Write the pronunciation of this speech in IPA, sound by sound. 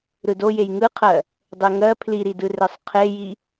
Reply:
ɾ ɯ d o j e j ŋ ɯ qʰ ɜ | dˤ e ŋ ɜ pʰ l i ɾ i d ɯ r e sˤ qʰ e j i

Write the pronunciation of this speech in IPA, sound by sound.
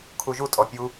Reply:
kʰ u ʒ u tʼ ɔ pʲ u

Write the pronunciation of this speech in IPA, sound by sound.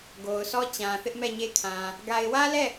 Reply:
ɡ o˨ ʊ̯ s ɔ˦ t͡ɕ ã˨ θ ɪ˦ ʔ m ɛ˦˨ ɲ e˦ kʰ ã˨ | ɡ a˨ ɪ̯ w ä˦ l ɛ˦˨

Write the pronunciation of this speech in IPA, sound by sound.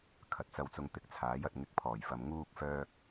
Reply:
kʰ ɐ˨ t̚ t͡s ɐ˧ w t͡s ʊ˧ ŋ t̪ ɪ˧ k̚ t͡sʰ aː˨˥ j ɐ˨ t̚ ŋ ɪ˧ k̚ pʰ ɔː˨˩ j f ɐ˨ m ŋ uː˧ k̚ f œː˧ k̚

